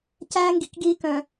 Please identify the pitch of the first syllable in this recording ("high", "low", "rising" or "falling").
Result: high